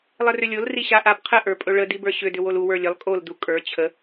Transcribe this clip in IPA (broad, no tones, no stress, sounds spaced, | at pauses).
lˠ ə r ʏ lʲ o l r i ɕ a ʔ a b qʰ ə ʔ ə˞ pʼ ɵ ɭ ə d i b ə˞ ɕ ʏ d ʏ w o l u w ə˞ lʲ ə lˠ kʼ o l d u kʼ ə˞ t͡ɕʰ ə